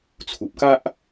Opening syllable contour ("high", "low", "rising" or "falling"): low